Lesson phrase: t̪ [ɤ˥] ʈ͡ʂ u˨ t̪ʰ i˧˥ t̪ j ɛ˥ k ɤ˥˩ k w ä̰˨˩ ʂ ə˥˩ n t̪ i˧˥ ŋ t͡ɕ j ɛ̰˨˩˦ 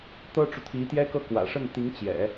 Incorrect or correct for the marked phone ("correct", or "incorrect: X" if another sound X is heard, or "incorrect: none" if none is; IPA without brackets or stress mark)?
correct